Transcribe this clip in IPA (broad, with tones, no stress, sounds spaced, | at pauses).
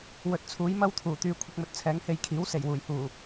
w ɵ˨ t̚ t͡sʰ uː˨˥ j m ɐ˥ w t̪ʰ uː˨˩ t̪ yː˨˧ kʷʰ ɪ˧ k̚ m ɵ˨ t̚ t͡sʰ ɛː˨˥ ŋ h e˧ j kʰ iː˨˥ w s e˨˩ j w uː˨˩ j h uː˨˩